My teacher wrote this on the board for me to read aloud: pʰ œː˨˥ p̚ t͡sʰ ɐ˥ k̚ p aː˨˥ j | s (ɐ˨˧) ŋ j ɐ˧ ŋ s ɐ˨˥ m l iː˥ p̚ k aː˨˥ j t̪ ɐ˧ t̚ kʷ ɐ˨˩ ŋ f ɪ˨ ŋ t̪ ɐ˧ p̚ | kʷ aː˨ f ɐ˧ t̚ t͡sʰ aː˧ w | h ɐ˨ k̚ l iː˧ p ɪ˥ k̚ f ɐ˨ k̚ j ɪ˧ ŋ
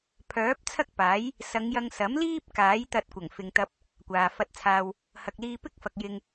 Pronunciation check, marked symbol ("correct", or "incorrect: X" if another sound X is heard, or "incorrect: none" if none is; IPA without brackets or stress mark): correct